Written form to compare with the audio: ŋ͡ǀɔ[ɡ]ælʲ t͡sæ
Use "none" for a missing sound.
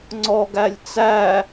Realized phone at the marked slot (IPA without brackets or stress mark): ɡ